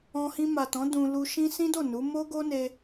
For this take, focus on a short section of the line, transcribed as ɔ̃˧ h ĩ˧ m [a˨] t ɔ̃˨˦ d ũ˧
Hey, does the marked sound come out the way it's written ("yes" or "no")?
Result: yes